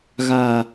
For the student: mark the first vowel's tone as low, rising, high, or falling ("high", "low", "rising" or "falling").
low